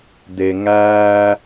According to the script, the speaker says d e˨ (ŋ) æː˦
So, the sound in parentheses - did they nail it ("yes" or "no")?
yes